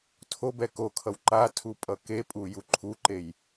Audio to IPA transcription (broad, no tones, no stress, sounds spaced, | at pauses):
tʰ o b ɛ k o kʰ ʌ w ǃ a tʰ u pʼ ʌ k e pʼ u j u ǃʰ u ǃ e j